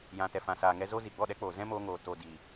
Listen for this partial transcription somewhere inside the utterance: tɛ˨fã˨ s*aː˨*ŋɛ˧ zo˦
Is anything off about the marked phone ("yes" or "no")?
no